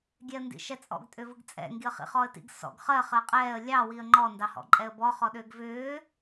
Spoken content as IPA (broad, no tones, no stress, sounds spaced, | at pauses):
ɡʲ ɛ ə̯ n d ḭ ʃ ɛ t͡sʼ ɔ̰ ɡ tʼ ʏ v ɯ ɡ t͡sʼ ɛ̰ ŋ ɡ i ə̯ χ ḭ χ ɔ ə̯ t ḭ ɡ s ɔ̰ ɡ χ ɜ χ ɜ qʼ ɛː ə̯ lʲ ɑ w i ə̯ ŋ͡ǃ ɔ n d ɑ h ɔ̰ ǃʼ ɛ ə̯ b ɔ χ ɔ ɗ ʏː ɡ v ʏː